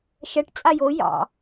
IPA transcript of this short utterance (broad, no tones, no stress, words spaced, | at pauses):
ʃɛʈ t͡sʼajo jɑ̰